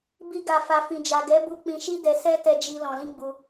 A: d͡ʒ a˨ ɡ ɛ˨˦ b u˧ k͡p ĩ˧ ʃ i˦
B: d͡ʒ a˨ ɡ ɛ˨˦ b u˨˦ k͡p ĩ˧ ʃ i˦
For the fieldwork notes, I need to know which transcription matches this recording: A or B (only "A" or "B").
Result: A